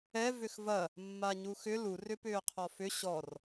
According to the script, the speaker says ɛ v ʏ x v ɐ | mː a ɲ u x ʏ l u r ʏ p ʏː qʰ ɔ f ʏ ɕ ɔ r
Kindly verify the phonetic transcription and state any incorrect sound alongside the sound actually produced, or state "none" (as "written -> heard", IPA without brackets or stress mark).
none